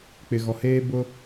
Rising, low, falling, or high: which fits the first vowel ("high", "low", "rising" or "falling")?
low